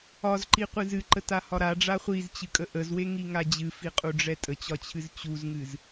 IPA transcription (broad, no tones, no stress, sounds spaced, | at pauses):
ɒ z ǃ i qʷ ɨ z ɨ ǃ ə t a h ɒ ɾ a ɖ͡ʐ a χʷ i z t͡ɕ ɨ kʼ ə ʔ ə z w e ŋ i ŋ a d͡ʑ ɨ f i qʼ u ɖ͡ʐ ɛ tʼ ə t͡ɕ ɒ t͡ɕʰ ɨ z t͡ɕ u z ŋ ɨ z